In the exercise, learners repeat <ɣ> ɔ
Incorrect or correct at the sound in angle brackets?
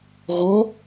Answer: correct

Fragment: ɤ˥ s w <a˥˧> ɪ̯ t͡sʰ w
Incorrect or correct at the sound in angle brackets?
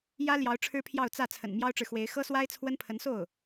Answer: incorrect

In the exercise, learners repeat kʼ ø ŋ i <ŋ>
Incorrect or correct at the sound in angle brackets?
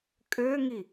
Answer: incorrect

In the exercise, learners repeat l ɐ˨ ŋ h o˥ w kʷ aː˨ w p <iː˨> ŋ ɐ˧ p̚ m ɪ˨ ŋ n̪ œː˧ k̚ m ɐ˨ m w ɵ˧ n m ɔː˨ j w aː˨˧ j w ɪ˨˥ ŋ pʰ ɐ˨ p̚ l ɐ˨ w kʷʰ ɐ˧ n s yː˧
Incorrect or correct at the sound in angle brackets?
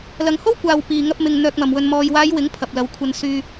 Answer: correct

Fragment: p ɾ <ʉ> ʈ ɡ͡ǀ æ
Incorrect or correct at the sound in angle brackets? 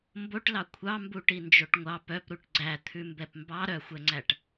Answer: incorrect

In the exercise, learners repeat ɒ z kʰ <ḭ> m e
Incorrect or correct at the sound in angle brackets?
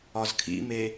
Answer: correct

